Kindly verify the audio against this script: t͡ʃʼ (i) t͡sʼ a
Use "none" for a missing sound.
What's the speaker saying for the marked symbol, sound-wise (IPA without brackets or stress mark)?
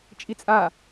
i